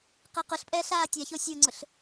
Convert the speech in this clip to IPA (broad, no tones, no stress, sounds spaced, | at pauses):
q ɛ q ʊ ɬ pʼ ɛː ɬ aː tʲ a ç o sʲ o ŋ͡ǀ ʊ ɬ